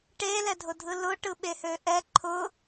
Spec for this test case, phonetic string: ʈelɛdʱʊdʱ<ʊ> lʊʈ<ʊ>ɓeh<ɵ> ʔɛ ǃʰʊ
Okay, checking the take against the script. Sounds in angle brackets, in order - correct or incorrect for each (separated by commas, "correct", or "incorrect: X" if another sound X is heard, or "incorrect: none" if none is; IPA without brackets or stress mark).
incorrect: ɯ, incorrect: ɯ, incorrect: ø